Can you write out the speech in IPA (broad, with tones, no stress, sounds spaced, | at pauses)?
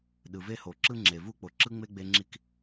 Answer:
ɗ ɯ˩ v e˥ h o˩ ǁ ɯ˥ ŋ͡ǁ e˩ v u˥ k͡p o˩ ǁ ɯ˥ ŋ͡m e˥ ɡ͡b e˥ ŋ͡ǁ i˥ k